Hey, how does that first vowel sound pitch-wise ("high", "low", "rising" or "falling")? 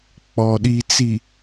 low